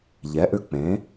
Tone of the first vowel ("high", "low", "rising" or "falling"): rising